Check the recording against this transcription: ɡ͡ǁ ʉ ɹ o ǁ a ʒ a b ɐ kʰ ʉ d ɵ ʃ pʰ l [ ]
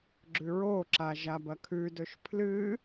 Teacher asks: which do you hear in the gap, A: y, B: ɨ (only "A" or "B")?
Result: B